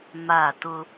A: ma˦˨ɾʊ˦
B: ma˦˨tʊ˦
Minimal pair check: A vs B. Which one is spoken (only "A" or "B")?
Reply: B